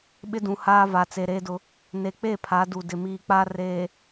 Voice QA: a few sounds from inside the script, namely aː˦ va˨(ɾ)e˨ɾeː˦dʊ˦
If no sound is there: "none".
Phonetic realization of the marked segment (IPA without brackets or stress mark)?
t͡s